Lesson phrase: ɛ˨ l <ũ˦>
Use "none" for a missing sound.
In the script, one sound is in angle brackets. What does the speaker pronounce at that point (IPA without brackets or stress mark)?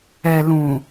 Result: ũ˨